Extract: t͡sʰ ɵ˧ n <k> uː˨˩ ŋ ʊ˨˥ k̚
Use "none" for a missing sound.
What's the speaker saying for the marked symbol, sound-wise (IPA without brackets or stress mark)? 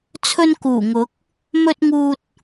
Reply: k